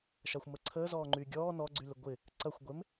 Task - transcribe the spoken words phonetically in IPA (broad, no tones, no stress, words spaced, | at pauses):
ʃaxʷməǀʰəː zɔːŋ͡ǃyɡʲɔː nɔɡ͡ǀylɪ ɡʷɪ | ǀɐxʷɡʷem